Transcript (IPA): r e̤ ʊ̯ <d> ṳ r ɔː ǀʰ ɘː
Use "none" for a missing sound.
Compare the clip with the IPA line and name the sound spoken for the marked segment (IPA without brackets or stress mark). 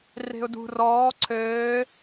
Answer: d